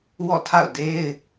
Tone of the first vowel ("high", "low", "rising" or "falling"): falling